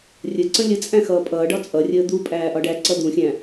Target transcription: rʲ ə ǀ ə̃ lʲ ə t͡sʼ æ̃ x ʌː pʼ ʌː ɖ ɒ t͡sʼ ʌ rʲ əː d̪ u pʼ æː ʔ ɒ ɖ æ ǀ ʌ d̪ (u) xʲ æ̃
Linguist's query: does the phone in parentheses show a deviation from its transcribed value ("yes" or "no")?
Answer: yes